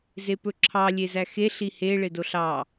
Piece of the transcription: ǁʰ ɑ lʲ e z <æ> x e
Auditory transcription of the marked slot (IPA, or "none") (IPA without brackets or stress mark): æ